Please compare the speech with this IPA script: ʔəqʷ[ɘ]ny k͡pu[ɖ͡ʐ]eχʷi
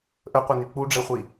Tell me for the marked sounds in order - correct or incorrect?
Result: incorrect: e, correct

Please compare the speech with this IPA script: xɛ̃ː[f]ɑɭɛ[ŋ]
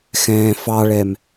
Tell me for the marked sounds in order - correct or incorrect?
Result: correct, incorrect: m

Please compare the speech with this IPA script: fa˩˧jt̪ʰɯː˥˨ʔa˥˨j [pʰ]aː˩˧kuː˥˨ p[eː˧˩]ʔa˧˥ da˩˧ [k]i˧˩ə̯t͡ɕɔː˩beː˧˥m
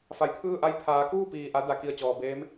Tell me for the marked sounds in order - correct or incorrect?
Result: correct, incorrect: iː˧˩, correct

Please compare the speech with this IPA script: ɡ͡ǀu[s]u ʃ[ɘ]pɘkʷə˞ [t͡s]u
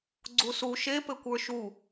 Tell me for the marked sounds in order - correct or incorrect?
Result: correct, incorrect: e, incorrect: ʃ

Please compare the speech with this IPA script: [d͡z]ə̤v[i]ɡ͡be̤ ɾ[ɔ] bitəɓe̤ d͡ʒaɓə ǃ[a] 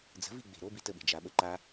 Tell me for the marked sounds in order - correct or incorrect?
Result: correct, correct, incorrect: o, correct

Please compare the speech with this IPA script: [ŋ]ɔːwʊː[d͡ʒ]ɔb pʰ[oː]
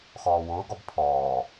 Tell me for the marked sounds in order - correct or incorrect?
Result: incorrect: x, incorrect: ɡ, incorrect: ɔː

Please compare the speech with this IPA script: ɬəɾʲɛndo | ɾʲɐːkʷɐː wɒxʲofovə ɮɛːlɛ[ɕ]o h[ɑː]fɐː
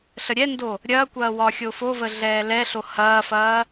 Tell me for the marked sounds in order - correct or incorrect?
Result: incorrect: ɬ, incorrect: ɐː

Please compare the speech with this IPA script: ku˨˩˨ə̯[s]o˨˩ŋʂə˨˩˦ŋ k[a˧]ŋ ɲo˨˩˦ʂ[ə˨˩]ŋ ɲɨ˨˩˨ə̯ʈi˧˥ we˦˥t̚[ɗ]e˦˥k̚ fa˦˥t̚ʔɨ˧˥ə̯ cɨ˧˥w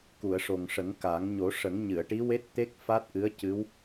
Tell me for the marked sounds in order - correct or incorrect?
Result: incorrect: ʂ, incorrect: a˨˩˦, incorrect: ə˨˩˦, incorrect: t̪

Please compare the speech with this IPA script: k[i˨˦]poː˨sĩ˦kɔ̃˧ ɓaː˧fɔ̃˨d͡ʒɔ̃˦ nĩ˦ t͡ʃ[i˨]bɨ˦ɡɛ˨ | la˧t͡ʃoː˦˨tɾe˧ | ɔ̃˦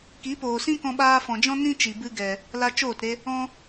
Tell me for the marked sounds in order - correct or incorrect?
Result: correct, correct

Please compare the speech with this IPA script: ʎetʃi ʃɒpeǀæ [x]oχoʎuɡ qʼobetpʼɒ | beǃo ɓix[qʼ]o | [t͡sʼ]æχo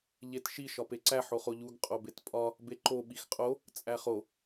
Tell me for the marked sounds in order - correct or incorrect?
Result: incorrect: ħ, correct, correct

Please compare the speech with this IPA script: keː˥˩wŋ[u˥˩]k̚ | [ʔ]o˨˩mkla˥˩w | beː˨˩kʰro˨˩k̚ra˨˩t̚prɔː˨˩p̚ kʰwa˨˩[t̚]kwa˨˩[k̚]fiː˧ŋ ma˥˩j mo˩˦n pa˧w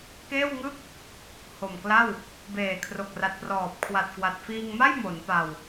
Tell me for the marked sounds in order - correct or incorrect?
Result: incorrect: ɯ˥˩, incorrect: h, correct, incorrect: t̚

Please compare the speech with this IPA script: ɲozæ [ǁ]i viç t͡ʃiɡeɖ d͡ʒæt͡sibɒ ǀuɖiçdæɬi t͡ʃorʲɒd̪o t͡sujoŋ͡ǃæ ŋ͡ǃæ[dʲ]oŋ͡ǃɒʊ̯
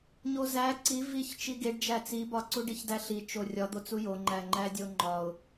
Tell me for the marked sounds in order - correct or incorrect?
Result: incorrect: ǀ, correct

